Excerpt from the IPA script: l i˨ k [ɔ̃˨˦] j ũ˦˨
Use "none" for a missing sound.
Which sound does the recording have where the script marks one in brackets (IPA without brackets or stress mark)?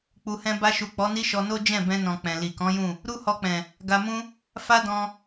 ɔ̃˨˦